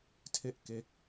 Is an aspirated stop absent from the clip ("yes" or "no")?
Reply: no